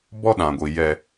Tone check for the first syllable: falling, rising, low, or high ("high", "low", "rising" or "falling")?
high